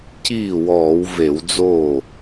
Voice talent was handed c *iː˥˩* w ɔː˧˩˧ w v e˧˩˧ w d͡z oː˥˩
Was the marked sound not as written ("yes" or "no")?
no